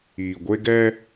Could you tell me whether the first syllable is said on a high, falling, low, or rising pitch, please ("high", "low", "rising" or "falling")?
low